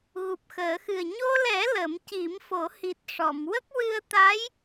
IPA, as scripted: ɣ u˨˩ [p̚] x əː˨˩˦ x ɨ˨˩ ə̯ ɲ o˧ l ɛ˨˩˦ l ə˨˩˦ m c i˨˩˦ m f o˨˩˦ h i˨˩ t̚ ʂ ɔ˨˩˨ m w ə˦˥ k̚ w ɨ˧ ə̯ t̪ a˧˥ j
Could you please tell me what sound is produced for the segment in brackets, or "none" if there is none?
p̚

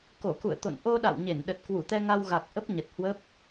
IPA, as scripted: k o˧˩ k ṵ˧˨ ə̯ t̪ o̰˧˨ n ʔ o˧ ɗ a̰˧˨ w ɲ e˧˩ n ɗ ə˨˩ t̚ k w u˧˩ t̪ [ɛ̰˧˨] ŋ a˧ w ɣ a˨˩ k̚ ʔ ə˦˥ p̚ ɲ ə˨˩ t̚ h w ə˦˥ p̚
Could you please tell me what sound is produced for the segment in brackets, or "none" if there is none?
ɛ˧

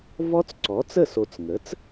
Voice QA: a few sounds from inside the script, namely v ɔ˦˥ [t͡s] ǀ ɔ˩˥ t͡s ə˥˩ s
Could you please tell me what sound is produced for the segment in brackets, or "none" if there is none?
t͡s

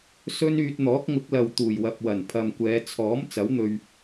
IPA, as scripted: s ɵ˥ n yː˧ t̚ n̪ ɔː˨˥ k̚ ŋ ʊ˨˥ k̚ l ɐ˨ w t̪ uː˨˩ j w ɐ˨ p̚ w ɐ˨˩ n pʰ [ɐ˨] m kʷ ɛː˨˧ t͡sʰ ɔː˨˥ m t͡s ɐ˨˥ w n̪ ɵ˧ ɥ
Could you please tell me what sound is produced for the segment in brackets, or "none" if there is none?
ɐ˨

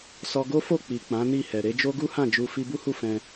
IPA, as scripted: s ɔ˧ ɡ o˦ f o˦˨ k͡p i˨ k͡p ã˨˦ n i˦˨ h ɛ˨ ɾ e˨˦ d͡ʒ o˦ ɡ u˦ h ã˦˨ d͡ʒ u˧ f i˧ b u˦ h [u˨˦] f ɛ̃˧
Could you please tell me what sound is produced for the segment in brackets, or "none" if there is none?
u˦˨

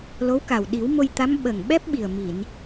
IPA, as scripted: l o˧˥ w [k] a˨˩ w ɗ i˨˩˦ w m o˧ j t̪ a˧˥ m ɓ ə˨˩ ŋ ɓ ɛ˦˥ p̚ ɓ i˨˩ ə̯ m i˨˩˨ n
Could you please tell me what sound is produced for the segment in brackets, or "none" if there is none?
k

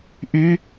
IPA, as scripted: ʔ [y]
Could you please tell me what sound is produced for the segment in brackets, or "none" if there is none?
y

